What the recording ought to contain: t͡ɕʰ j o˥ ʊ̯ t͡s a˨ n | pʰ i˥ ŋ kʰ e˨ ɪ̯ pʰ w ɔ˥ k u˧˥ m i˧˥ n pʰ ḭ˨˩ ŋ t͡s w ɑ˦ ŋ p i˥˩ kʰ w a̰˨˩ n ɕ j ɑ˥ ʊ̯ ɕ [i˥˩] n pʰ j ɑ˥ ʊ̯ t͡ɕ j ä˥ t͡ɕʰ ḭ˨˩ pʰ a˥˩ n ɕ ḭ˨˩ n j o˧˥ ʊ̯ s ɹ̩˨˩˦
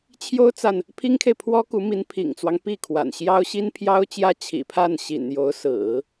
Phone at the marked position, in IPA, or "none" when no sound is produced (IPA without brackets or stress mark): i˥